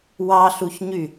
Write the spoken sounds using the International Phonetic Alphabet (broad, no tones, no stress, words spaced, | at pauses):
wɑɬuçɲy